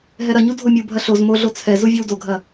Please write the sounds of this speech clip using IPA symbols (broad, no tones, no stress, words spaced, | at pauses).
ɦɛɾɐɲu dʱomʲubʱɐ ɬoz moɮo t͡sʰɛzu vʲowdoɡʱɐ